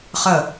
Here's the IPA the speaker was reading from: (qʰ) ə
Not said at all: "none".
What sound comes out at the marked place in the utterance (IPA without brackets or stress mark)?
χ